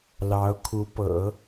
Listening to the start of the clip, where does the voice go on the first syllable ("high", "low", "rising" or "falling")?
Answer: rising